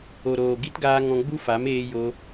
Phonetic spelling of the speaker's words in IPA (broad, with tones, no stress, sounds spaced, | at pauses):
o˨ ɾ oː˨ ɡ i˦ t ɡ aː˧ ŋ ɔ̃˧ ɡ͡b u˦ f a˨˦ m eː˧ j o˧